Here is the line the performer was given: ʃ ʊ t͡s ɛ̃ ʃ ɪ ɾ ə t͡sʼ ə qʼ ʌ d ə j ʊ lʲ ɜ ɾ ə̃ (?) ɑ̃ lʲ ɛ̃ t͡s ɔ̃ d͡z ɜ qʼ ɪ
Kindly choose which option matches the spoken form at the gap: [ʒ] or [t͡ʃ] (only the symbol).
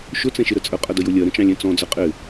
t͡ʃ